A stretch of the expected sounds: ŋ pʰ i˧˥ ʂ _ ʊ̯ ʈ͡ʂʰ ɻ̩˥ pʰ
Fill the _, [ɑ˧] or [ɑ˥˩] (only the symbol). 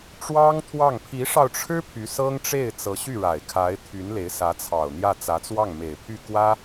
ɑ˧